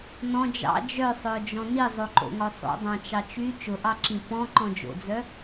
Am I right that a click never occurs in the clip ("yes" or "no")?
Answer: no